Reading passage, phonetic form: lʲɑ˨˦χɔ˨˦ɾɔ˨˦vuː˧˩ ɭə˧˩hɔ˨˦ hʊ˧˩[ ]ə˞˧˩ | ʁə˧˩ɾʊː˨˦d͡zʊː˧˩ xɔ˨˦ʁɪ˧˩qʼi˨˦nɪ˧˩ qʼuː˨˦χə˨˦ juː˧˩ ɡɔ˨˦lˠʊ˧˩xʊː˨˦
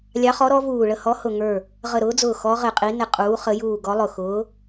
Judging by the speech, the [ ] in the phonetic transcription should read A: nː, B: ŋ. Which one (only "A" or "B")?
B